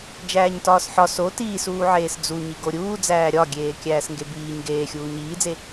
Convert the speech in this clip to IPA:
d͡ʒ æː ɲ t ɒː s ħ ɒ s o t iː s uː ʕ eː s d͡z u ɲ i ɡ o ɾʲ uː d͡z æː ɾʲ ɒ ɡʲ eː kʲ æː s ŋ ɡ e b iː ɲ ɡ eː xʲ uː ɲ iː d͡z e

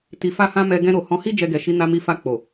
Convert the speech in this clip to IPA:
t i˨ f a˧ h ã˧ m ɛ˧ ɡ ɛ̃˧ ɾ o˨ h ɔ̃˨˦ h i˦ d͡ʒ ɛ˧ ɡ ɛ˨ ʃ i˨˦ n a˧ m i˧ f a˧ k͡p o˨

